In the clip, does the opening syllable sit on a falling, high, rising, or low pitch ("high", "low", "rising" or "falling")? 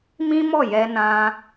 high